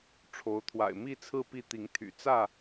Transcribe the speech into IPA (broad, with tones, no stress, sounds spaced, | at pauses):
ʈ͡ʂʰ o˨˦ ʊ̯ t̪ʰ w a̰˨˩ ɪ̯ m i˥˨ t͡sʰ ɹ̩˥˨ p i˥˨ t̪ i˨˦ ŋ t̪ʰ y̰˨˩ t͡s ä˥˨